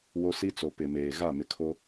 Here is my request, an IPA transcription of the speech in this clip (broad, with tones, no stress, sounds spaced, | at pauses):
w o˦ s i˦ t͡s o˨ p ɪ˨ m eː˨ ɣ a˦˨ m ɪ˨ kʰ o˦